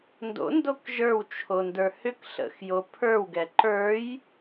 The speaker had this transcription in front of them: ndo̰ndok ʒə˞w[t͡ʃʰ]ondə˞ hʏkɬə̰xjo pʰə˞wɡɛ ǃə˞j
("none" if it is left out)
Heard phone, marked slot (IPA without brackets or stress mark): t͡ʃʰ